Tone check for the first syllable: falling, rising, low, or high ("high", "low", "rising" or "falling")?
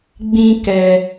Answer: high